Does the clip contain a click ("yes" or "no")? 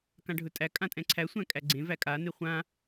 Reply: yes